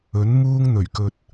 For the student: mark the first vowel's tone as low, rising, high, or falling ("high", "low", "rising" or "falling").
rising